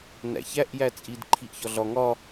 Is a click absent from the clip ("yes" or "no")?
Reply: no